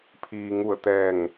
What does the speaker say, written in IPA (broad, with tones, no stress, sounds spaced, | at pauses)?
pʰ iː˩ ŋ u˧˩ ə̯ t̪ ɛː˧˩ ŋ